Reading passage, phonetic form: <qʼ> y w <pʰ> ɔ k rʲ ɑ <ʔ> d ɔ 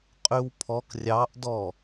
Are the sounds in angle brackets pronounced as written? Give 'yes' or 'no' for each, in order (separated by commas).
yes, yes, yes